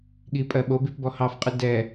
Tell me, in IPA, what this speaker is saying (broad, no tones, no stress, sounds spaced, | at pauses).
ɠ i pʼ ɜ ɓ o b i p b ɔ h ɑ f qʼ ɨ d ɛ